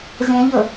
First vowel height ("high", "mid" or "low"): mid